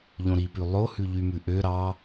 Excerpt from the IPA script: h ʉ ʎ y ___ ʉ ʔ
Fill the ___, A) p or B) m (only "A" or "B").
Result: B